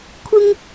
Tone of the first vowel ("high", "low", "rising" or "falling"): high